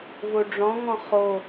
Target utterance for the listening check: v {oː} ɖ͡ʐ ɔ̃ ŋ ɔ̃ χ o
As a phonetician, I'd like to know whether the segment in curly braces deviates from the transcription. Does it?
yes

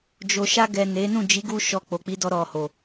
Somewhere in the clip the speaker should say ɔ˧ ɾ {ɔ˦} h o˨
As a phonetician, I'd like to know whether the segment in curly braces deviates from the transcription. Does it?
yes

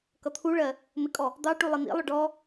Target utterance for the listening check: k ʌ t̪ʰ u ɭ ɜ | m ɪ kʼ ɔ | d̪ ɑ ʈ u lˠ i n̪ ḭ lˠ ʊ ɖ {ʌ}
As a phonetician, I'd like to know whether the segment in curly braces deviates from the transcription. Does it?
yes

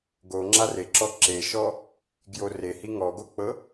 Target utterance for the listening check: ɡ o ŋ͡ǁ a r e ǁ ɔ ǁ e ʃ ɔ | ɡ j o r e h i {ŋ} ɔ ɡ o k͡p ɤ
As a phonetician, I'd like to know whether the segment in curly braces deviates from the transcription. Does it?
no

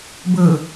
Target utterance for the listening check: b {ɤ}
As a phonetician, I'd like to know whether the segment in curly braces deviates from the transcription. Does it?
no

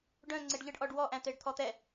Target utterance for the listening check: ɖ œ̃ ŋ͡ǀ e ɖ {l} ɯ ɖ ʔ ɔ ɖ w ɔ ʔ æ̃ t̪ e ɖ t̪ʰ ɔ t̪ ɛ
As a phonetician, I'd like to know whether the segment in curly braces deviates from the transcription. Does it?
yes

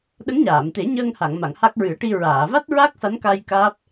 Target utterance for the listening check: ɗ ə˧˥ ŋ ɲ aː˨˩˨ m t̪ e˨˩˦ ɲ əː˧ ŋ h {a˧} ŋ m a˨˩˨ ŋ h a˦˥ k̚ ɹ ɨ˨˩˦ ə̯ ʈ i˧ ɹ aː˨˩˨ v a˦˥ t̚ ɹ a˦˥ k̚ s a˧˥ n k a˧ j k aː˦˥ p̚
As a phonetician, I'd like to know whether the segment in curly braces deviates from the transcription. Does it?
yes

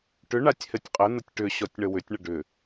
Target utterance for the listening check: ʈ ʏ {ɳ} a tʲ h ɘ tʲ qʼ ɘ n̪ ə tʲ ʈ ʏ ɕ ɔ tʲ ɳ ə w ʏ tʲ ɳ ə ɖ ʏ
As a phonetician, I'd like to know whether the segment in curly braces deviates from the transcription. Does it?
no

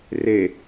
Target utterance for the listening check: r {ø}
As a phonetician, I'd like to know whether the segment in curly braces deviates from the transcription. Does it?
yes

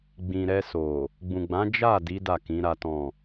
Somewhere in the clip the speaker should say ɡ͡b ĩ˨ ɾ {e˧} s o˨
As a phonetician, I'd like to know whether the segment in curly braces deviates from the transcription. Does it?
yes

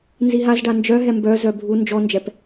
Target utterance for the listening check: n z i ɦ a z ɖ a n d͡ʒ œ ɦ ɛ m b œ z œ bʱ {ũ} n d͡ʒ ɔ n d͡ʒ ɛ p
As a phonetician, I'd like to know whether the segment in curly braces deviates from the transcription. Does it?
yes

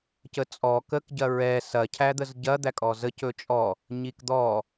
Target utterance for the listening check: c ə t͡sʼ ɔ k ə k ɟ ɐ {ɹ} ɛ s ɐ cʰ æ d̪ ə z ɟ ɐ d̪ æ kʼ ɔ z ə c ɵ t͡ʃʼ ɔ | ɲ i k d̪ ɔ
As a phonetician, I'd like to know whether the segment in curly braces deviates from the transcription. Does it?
no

